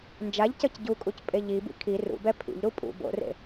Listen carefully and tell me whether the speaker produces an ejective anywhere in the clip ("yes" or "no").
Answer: yes